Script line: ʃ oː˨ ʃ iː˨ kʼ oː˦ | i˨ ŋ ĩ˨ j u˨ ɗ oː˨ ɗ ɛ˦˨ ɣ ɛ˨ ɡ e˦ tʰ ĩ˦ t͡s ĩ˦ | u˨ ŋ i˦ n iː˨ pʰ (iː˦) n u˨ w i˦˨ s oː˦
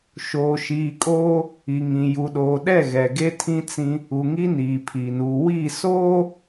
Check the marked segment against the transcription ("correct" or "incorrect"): incorrect